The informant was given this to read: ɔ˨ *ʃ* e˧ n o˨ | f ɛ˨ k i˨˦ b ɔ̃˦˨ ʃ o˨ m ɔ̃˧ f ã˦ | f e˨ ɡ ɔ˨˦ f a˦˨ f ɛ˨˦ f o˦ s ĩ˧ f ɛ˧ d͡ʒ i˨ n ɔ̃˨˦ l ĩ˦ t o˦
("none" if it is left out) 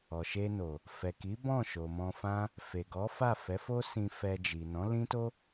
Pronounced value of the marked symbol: ʃ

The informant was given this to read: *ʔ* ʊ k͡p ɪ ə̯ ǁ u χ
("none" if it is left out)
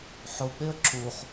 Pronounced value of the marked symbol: ħ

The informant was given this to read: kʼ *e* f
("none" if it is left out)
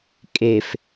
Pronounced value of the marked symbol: e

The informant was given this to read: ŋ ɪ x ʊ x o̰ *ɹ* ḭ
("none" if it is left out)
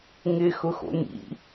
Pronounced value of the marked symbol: n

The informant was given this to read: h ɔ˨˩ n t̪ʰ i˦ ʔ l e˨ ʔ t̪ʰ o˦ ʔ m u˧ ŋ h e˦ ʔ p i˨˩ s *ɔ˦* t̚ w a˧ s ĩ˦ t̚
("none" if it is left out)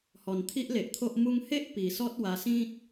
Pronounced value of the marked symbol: ɔ˦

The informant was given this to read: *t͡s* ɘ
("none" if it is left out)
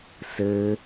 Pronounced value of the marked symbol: s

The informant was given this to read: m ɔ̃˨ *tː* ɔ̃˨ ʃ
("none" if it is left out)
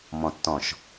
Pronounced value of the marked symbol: tː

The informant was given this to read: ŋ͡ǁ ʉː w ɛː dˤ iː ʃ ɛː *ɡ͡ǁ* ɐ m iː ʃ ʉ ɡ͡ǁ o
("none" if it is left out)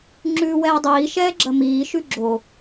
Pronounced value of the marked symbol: ɡ͡ǁ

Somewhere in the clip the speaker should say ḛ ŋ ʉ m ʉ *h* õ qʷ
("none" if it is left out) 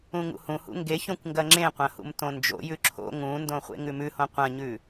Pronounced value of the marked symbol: h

